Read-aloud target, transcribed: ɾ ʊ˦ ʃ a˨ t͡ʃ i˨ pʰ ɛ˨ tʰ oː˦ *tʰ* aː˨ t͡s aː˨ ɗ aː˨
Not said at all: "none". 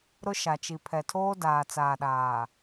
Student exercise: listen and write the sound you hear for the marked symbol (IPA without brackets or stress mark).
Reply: d